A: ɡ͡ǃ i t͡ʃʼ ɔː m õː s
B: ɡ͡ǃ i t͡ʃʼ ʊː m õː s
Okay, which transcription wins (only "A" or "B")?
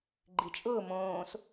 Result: B